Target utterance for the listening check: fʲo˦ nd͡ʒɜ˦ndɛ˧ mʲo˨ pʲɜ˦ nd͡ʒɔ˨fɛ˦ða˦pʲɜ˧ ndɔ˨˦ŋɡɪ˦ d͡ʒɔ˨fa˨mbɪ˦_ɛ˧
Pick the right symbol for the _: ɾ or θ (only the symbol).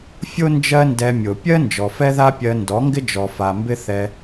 θ